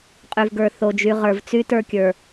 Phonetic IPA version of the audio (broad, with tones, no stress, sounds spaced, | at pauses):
qʼ y˨ v ɡ ə˞˨ θ o˨ d͡ʒ y˨ ʁ ə˞˨ v t͡s y˦ t ə˞˦ kʲ ə˞˨